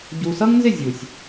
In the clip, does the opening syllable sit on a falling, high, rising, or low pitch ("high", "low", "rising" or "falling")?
low